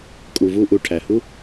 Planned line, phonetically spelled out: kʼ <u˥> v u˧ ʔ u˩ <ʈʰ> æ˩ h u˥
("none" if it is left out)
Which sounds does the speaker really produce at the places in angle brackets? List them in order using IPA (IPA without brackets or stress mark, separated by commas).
u˩, ʈʰ